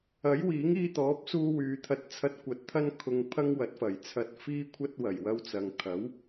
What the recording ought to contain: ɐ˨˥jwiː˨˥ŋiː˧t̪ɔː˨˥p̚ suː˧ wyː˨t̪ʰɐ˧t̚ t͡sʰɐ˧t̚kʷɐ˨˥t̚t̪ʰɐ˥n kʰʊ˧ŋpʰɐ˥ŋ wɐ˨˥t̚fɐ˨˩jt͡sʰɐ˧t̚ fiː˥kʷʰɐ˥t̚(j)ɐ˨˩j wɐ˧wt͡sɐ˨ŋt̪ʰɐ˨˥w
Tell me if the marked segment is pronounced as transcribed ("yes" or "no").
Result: no